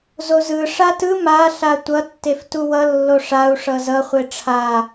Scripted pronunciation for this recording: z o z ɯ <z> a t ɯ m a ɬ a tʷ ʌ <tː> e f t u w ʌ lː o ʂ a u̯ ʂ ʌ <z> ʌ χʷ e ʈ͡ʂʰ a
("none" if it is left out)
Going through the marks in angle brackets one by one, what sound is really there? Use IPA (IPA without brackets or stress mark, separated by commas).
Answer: ʂ, tː, z